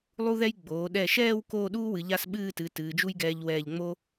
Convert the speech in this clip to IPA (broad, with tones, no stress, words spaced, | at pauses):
lˠu˥ðɛ˥j ɡ͡boː˩˧ɗɛ˧˩ʃɛː˥˧w koː˥˧ɗuː˥wɨ˩˧ ʎa˥˧sɓɨː˥˧tɨ˩˧ tɨː˩˧d͡ʒu˥jɡɛː˧ʎ wɛː˧˩ʎŋ͡mo˥